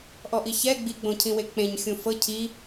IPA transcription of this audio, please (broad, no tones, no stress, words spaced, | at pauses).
ʔɔʔiçɛ ɡ͡biɡ͡bõcʰĩwe k͡pẽɲ xʲũfɤ cʰi